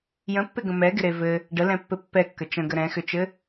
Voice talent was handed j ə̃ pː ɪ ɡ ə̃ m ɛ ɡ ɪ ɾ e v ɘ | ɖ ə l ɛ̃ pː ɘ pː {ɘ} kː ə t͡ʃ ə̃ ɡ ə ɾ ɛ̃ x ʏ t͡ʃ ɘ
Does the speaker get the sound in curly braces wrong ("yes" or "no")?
yes